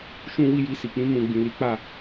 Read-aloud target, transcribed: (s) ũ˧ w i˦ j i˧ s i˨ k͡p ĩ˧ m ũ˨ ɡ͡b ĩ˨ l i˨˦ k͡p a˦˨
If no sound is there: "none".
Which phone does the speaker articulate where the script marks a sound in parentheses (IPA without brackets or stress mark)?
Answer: ʃ